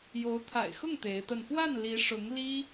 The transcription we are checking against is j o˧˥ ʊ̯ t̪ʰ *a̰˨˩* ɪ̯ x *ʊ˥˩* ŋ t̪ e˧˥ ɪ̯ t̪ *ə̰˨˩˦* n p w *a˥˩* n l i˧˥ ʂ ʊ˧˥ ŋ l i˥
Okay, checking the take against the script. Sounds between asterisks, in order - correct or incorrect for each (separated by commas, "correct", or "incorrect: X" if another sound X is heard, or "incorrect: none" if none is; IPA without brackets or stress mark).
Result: correct, correct, incorrect: ə˥˧, correct